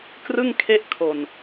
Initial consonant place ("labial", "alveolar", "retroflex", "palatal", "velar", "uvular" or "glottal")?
velar